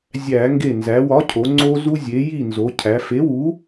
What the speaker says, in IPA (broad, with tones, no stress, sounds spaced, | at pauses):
zʲ æ˧˩˧ ŋ ɡ e˧˩ n z æ˩˧ w ɒ˨˥ cʰ o˩˧ ŋ͡ǀ o˧ z u˧ zʲ e˩˧ j i˥˨ n z o˩˧ cʰ æ˩˧ f e˨˥ w u˨˥